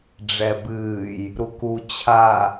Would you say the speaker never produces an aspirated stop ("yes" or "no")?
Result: no